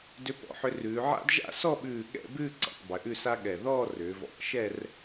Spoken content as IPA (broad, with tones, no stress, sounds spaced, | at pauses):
d ʏ˧ p ɔ̰˧˩ ħ ʏ˧ r ʉː˩˧ ʕ a̰˥ d ʒ a̰˥˧ s ɔ˥˧ ɓ ʉː˧˩ ɠ ɛ̰˥˧ b ʉː˥˧ ǀ ɛ̰˩˧ tˤ b ʏ˩˧ ʔ ʉ˥˧ s a˥ ɠ ɛ˧˩ ð ɔː˥˧ r ʏː˩˧ v ɔ̰˧˩ ʔ ʃ ɛ˥˧ r